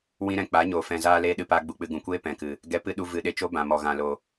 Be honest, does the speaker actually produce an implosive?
yes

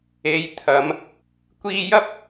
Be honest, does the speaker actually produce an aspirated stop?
yes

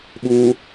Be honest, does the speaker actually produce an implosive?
yes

